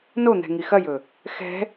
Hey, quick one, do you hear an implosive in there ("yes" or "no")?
no